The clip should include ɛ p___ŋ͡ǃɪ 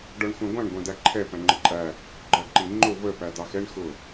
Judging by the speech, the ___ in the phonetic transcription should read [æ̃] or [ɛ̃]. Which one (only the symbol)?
æ̃